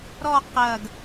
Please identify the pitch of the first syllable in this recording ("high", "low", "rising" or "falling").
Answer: falling